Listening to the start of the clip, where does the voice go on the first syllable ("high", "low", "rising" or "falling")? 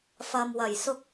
low